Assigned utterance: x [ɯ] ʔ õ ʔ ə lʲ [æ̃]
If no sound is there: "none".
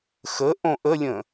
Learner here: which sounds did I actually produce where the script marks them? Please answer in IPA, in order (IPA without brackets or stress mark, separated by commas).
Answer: ə, ə̃